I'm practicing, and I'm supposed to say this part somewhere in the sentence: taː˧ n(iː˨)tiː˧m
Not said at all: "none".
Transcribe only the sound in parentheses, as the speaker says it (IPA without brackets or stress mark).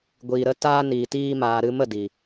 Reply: iː˨